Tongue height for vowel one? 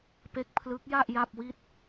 mid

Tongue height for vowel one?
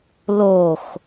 mid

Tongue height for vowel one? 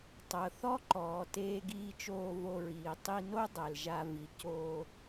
mid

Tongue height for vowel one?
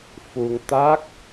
high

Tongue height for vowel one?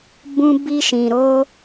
high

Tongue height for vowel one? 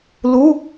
high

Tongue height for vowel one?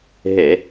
mid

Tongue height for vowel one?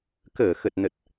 mid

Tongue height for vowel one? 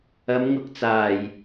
low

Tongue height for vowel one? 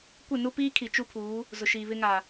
high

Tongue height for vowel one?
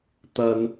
low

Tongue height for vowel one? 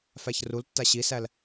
low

